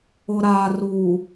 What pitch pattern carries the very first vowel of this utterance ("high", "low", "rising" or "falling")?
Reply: low